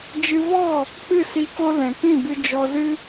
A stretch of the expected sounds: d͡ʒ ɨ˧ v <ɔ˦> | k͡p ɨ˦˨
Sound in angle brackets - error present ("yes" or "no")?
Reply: yes